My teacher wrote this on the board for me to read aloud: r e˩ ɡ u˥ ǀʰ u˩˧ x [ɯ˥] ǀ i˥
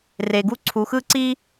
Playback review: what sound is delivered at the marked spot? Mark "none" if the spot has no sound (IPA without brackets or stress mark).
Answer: ɯ˥